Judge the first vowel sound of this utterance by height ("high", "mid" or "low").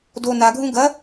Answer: mid